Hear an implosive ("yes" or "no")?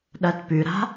yes